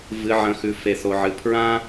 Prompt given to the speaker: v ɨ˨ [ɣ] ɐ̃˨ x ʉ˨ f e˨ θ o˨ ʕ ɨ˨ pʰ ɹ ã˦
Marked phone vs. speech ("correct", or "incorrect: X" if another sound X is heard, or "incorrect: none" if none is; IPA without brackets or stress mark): incorrect: ʕ